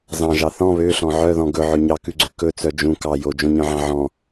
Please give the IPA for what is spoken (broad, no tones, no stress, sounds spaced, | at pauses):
z ɑ̃ ʒ ɑ θ ɔ̃ β ø ɬ ɔ̃ ʕ œ ð ɔ̃ ɡ ɵ ʕ ɵ ɲ ɑ k ʉ ɡ͡ǀ ø k ɵ t͡s œ d͡ʒ ũ k ɑ j o d͡ʒ õ ɲ œ̃ ʕ ɑ̃ ʕ ɔ̃